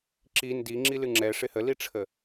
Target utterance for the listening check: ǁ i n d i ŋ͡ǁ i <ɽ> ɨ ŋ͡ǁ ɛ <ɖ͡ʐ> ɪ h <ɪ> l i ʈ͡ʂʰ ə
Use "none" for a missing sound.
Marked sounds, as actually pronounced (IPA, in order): l, ʂ, ə

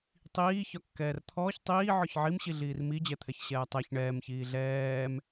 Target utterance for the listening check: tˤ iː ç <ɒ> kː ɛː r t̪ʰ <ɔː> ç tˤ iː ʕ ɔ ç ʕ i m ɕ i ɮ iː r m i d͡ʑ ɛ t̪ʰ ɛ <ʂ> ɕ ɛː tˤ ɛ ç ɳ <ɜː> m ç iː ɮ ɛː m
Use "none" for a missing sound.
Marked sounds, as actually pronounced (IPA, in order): ɒ, ɔː, ç, ɛː

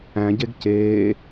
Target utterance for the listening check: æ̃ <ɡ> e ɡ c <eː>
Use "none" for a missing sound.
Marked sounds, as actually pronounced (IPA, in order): ɟ, eː

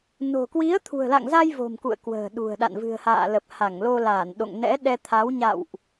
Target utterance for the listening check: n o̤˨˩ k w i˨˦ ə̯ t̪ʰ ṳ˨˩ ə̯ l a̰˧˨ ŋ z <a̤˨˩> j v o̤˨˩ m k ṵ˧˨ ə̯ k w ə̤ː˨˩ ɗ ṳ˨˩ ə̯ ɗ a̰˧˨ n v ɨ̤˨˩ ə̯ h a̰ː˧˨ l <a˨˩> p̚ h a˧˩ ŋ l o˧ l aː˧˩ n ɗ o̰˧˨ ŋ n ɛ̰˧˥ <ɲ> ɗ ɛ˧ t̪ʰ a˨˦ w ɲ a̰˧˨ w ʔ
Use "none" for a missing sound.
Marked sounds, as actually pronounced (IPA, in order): a˧, ə˨˩, none

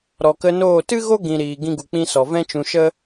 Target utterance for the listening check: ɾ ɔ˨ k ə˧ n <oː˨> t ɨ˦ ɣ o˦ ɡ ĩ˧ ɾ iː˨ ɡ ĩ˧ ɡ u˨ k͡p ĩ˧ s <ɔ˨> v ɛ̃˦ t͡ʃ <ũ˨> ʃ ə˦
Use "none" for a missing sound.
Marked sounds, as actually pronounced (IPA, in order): oː˦˨, ɔ˨, ũ˧

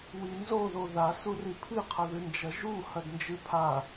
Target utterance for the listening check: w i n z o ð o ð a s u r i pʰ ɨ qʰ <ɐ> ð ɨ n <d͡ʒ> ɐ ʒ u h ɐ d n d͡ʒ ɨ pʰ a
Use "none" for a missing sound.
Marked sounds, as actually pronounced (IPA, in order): ɐ, d͡ʒ

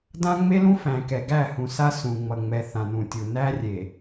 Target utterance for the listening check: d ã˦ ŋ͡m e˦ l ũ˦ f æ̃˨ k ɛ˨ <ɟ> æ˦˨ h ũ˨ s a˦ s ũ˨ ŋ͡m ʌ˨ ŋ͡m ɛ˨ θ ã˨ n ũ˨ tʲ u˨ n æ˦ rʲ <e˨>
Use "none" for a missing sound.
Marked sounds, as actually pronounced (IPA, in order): ɡ, e˨

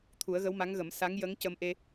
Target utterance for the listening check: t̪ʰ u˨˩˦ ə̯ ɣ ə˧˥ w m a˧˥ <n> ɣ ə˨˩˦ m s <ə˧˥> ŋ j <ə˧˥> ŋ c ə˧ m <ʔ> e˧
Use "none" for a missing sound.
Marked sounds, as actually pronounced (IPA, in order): ŋ, a˧˥, ə˧˥, ʔ

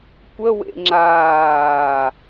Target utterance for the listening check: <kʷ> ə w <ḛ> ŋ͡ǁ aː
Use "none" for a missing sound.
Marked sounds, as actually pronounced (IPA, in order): kʷ, ḛ

